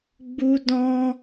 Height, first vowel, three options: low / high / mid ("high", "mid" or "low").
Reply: high